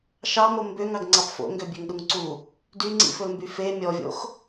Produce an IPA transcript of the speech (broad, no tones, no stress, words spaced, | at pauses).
ʃɑmo mbøŋɑɡŋ͡ǀɑp fo̰ŋɡøbʲøŋɗuŋ ǀu | dyŋ͡ǀḭfɵlmby fe mʲɔvʲo̰x